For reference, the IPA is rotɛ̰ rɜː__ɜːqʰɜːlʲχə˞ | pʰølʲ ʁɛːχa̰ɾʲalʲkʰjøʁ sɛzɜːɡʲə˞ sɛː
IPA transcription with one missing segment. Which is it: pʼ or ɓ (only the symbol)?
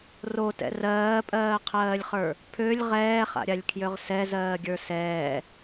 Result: pʼ